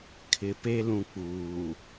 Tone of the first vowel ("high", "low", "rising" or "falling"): low